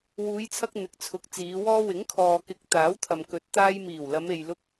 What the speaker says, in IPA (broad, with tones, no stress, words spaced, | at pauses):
wuː˨˧jt͡sʰɐ˧k̚ n̪ɪ˨k̚t͡sʰʊ˨˥k̚ t͡siː˨˧wɔː˥ wɪ˨˥ŋkʰɔː˨kɪ˨˥k̚ t̪aː˨˥wt̪ʰɐ˨mkɵ˨˥t̚ t̪aː˧jmiː˨˩w lɐ˨˧me˨j lʊ˧k̚